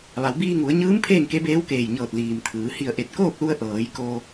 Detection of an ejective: absent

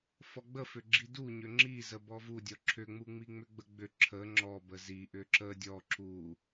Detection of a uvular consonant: absent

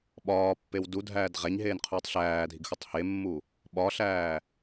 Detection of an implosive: present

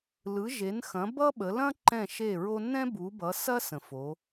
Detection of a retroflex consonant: absent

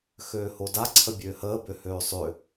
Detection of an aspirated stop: present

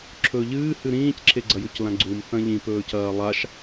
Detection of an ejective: absent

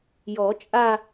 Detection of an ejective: present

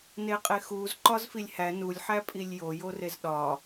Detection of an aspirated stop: absent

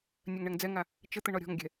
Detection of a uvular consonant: absent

